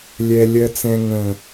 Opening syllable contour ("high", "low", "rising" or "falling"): high